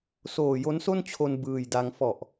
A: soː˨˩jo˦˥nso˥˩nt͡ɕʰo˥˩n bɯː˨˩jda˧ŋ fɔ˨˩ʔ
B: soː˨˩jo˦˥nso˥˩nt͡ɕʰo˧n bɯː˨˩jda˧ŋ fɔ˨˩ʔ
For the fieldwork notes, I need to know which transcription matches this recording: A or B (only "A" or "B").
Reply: B